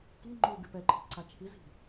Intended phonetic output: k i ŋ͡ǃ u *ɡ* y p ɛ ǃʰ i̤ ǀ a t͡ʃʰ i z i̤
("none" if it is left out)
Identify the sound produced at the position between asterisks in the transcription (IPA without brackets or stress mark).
ɡ